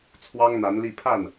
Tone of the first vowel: high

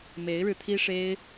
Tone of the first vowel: rising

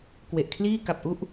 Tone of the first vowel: low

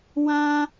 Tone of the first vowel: high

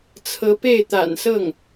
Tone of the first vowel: rising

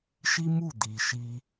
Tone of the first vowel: high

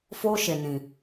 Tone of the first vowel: high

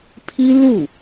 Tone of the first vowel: high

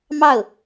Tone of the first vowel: falling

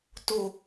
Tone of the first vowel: low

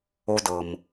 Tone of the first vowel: low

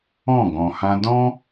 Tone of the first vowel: falling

